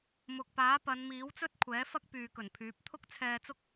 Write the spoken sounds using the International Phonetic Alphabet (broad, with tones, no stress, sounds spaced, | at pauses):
m ʊ˨ k̚ p aː˨˥ p ɐ˨˧ n m iː˨˥ w t͡s ɵ˥ t̚ kʷʰ ɛː˨˥ f ɐ˥ k̚ p yː˨ k ɵ˨˩ n pʰ yː˨˥ p̚ t̪ʰ ʊ˥ k̚ t͡sʰ ɛː˧ t͡s ʊ˥ k̚